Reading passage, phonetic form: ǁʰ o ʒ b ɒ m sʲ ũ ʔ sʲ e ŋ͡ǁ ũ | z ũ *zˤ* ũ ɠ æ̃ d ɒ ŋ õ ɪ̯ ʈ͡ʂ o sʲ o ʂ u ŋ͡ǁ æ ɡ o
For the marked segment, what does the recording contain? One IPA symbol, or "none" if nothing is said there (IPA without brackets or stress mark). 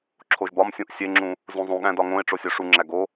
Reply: zˤ